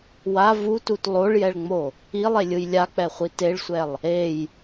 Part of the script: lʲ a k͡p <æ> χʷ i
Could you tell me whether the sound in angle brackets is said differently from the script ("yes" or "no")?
yes